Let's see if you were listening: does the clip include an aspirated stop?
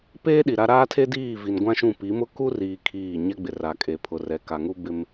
yes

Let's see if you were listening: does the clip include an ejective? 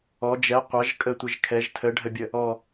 yes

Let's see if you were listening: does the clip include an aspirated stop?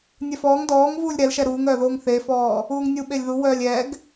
no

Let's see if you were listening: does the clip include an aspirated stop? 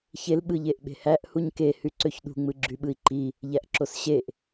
no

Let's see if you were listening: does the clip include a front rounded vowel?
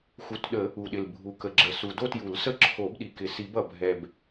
no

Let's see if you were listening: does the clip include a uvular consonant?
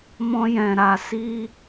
no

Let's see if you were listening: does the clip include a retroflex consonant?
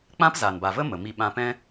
no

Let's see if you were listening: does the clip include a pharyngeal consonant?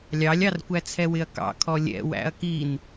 no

